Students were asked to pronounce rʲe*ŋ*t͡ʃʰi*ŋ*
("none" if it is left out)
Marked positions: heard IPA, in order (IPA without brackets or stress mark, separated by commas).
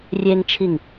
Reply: ŋ, ŋ